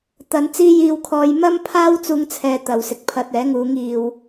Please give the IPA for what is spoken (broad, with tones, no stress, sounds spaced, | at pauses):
t̪ ɐ˨˧ n t͡s iː˧ j iː˨ w kʰ ɔː˨ j m ɐ˥ m pʰ aː˥ w t͡s uː˧ ŋ t͡sʰ ɛː˨ t̪ ɐ˨ w s ɪ˨˥ k̚ pʰ ɐ˧ t̚ ɛː˨˥ ŋ uː˨˧ ŋ iː˨ w